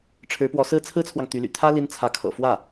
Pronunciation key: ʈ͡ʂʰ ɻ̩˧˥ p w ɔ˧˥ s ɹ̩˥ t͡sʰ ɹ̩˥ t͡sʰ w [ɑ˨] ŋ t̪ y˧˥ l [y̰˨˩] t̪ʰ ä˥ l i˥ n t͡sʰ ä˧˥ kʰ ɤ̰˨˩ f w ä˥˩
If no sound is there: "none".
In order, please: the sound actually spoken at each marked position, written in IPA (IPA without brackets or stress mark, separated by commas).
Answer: ɑ˨, y̰˨˩